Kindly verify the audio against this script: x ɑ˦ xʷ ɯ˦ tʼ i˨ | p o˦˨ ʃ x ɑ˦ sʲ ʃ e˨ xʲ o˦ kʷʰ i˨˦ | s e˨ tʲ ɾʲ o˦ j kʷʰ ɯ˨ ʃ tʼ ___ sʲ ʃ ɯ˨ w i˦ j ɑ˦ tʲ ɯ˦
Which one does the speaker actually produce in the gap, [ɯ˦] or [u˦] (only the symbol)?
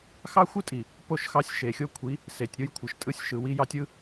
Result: ɯ˦